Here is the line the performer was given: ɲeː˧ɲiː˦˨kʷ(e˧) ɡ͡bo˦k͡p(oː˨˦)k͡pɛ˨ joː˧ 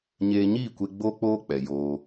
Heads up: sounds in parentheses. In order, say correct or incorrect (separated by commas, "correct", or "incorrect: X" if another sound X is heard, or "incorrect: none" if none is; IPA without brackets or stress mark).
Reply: correct, incorrect: oː˦